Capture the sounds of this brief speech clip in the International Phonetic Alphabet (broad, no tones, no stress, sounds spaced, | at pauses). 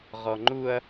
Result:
ʁ ɔ ŋ͡ǃ u ɐ̯